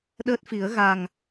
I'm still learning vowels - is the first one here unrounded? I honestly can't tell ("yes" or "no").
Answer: yes